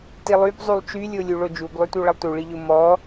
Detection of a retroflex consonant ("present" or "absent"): present